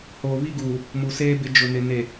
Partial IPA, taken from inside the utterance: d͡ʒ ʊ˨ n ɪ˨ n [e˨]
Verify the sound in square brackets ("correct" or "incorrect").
correct